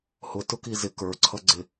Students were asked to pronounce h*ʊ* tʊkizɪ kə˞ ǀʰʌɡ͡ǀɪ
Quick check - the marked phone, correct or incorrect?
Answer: correct